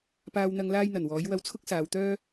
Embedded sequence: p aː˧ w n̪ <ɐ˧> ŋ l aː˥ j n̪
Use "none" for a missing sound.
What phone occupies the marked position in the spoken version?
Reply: ɐ˧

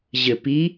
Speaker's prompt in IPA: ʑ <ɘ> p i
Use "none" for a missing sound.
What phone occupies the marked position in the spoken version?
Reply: ɘ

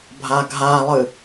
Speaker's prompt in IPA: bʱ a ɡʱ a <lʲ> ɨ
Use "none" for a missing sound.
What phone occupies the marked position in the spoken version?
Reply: lˠ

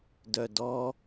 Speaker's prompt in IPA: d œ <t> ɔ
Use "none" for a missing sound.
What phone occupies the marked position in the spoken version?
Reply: d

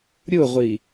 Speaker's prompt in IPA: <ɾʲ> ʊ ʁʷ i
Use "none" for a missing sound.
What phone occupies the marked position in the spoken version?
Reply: ɾʲ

